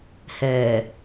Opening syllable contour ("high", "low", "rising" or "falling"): low